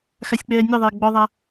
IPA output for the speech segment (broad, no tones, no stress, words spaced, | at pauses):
xasʲk͡pɛːnʲɤðˤɛː ɡ͡bɔðˤa